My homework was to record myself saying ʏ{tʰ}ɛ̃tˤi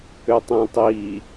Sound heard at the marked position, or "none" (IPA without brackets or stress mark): tˤ